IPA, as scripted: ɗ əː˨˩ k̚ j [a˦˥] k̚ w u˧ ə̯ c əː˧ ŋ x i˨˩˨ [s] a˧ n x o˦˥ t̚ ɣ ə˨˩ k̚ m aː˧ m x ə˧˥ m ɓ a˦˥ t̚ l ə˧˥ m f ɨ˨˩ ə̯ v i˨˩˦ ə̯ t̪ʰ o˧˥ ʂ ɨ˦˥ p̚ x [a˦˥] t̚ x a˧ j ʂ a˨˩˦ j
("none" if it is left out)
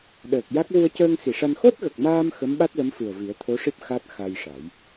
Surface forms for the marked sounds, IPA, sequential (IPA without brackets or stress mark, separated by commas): a˦˥, ʂ, a˦˥